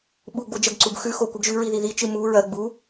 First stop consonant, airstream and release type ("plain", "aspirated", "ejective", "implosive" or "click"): implosive